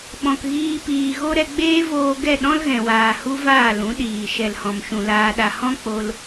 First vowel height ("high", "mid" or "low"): mid